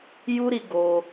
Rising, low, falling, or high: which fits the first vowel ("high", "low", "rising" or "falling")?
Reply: high